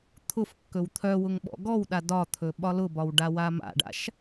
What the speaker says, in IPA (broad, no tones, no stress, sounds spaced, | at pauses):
t̪ʰ ʊ f kː ɵ w t̪ʰ œ w ʊ ŋ ɓ ɔ̰ ɡ ɔ w ɗ a d ɒ t̪ʰ ɵ ɓ ɒ l ʊ b ɒ w ɖ a w a m a̰ ɖ a̰ ʃ